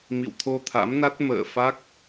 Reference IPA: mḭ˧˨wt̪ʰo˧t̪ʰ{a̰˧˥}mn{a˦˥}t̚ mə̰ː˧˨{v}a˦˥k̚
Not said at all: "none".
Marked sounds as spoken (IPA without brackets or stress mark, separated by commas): a̰˧˥, a˦˥, f